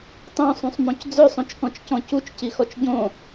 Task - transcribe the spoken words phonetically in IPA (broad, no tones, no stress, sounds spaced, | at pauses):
tˤ õ sˤ ũ sˤ m õ c d͡z ø sˤ õ t͡ʃ k ɔ̃ t͡ʃ c ɔ̃ c u t͡ʃ c i x ɔ t͡ʃ ɟ õ